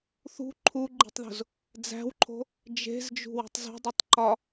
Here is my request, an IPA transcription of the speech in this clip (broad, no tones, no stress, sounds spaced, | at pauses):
θ ṳ ǃʰ u ɡ͡ǃ i̤ tˤ ð o̤ z | d͡z æ̤ w ǃʰ o̤ | d͡ʒ e̤ z d͡ʒ ṳ w o̤ tˤ z o̤ dˤ i tˤ ǃ ɒ